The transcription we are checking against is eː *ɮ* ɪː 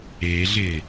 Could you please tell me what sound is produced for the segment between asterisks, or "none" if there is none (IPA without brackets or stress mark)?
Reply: ɮ